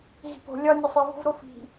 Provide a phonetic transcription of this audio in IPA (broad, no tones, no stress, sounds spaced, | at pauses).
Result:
ɣ i̤ p o̤ lʲ ɒ nʲ o sˤ i v o̤ v ɾ o f i̤